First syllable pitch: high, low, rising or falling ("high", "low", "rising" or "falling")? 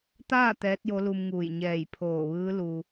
falling